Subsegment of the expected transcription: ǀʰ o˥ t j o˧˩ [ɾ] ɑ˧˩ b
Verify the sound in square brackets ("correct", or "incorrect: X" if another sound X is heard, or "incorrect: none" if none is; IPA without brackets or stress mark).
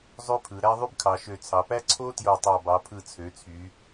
incorrect: tˤ